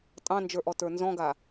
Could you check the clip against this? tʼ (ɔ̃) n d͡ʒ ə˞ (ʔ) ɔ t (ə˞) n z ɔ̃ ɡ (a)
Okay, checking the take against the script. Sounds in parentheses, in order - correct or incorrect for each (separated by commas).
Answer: incorrect, correct, correct, correct